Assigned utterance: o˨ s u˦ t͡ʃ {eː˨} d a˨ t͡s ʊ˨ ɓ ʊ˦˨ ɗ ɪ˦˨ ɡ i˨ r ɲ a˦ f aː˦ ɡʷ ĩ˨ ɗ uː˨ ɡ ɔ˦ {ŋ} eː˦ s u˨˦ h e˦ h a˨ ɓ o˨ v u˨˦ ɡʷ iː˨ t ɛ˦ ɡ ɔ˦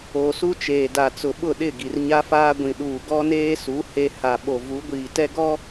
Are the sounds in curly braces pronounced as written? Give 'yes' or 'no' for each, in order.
yes, no

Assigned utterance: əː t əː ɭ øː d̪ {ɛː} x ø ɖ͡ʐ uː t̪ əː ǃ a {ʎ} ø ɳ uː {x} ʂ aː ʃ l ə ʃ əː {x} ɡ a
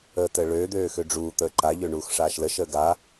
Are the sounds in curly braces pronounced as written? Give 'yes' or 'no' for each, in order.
no, yes, yes, no

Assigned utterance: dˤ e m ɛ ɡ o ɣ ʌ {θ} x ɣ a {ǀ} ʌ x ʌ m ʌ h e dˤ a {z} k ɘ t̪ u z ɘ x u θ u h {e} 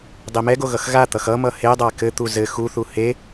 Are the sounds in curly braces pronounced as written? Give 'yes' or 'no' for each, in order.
no, no, no, yes

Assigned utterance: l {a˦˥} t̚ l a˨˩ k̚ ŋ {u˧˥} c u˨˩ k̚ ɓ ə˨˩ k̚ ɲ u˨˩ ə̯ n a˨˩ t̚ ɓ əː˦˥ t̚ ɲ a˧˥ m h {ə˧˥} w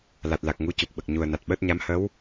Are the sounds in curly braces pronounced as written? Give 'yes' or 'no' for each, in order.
no, yes, yes

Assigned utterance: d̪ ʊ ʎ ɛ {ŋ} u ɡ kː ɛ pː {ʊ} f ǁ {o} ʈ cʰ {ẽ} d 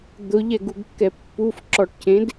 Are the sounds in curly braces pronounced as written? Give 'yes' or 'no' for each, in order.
no, no, no, yes

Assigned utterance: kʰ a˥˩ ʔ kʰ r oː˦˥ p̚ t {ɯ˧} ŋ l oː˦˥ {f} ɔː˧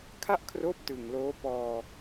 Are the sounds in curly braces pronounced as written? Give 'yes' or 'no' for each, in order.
no, no

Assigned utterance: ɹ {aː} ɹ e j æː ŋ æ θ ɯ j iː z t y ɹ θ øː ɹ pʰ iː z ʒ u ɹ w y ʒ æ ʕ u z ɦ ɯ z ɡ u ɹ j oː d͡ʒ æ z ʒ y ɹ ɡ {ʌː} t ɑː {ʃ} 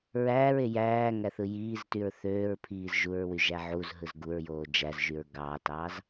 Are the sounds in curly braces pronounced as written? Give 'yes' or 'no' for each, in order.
no, no, no

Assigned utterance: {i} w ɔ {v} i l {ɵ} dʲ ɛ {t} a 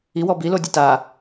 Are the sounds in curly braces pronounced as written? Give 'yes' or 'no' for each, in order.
yes, no, no, yes

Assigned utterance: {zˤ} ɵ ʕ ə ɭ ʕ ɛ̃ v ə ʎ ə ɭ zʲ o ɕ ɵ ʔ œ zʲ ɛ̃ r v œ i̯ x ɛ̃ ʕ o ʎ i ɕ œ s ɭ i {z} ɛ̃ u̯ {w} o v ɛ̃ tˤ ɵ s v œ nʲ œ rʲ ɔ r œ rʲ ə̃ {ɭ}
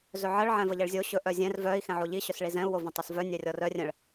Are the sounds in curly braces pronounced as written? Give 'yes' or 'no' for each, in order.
no, yes, yes, yes

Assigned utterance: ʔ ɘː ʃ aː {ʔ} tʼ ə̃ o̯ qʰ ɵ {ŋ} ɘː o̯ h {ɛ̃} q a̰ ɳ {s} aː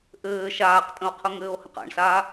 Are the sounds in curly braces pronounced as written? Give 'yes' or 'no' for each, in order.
no, yes, no, yes

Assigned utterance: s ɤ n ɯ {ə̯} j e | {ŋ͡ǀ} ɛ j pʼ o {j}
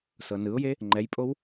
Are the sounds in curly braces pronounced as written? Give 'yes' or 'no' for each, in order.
no, no, no

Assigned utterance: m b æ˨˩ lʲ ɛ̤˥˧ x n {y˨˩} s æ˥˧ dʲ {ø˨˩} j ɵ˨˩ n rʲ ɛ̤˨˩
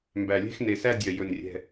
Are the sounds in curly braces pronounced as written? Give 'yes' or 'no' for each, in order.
no, no

